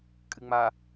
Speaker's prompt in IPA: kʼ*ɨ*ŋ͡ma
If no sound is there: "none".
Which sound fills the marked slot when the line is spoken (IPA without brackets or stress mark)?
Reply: ɨ